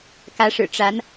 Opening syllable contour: rising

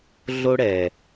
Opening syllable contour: high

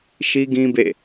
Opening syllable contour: high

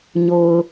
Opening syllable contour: low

